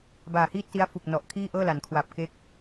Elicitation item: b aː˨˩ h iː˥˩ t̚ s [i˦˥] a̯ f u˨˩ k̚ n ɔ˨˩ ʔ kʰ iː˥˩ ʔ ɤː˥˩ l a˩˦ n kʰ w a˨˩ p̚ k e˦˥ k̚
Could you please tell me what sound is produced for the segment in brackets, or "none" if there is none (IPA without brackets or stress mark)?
i˦˥